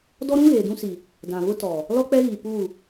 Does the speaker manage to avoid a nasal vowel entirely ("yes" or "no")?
no